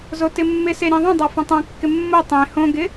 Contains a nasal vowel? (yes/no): yes